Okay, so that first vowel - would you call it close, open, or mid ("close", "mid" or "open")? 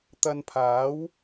open